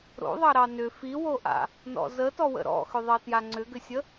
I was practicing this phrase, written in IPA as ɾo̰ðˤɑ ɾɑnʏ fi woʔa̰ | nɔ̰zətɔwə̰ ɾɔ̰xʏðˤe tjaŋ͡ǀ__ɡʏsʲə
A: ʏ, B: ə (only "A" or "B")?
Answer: A